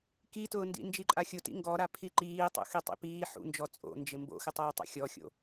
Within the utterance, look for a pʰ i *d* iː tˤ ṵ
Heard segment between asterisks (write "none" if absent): ǃ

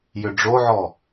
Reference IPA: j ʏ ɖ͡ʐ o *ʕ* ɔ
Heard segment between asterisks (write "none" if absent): ʕ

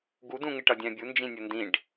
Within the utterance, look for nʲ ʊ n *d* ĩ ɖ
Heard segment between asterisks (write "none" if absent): d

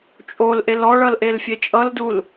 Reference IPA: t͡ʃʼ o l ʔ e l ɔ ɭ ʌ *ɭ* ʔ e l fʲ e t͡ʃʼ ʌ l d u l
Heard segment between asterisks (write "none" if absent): l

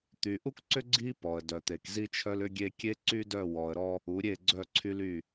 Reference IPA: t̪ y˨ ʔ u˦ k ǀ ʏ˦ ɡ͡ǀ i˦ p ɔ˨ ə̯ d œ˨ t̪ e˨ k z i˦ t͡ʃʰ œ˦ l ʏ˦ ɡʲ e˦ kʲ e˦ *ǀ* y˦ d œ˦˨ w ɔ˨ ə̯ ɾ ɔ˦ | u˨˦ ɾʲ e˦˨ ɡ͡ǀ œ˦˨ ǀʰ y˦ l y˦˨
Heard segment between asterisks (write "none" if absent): ǀ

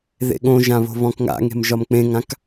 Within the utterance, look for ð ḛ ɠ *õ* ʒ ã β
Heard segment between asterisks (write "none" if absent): õ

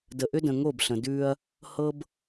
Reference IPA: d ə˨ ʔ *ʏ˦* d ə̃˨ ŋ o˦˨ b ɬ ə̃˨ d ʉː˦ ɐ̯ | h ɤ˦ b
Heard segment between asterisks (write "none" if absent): ʏ˦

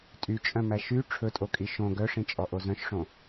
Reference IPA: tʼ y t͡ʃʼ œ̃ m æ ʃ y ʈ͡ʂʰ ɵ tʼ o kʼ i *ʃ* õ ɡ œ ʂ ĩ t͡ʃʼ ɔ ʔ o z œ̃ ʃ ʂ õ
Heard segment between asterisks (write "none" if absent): ʃ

